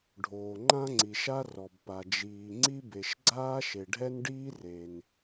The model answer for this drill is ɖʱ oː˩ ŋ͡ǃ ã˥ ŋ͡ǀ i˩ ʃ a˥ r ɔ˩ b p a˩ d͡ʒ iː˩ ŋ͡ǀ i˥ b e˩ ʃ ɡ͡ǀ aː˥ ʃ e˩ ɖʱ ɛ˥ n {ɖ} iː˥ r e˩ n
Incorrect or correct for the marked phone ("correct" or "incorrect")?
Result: correct